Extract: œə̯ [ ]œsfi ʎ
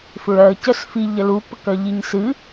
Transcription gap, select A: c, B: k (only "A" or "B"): A